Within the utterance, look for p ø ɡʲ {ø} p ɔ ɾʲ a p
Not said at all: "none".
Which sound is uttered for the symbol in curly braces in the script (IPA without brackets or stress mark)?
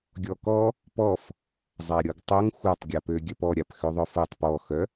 œ